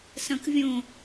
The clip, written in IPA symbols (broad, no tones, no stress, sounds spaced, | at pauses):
s ɐ̃ k vʲ õ